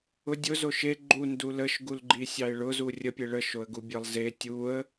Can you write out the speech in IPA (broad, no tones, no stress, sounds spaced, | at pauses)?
ʊ dʲ ʊ z o ʃ e ɡ͡ǃ u n d u l ə ʃ ɡ u l ɡ͡ǃ i sʲ ɑ ɪ̯ ɭ ʊ z u rʲ ə pʲ e ɭ ə ʃ o ə̯ ɡ u bʲ ə lˠ z e tʲ u ə̯